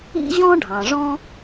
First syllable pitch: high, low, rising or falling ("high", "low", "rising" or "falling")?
high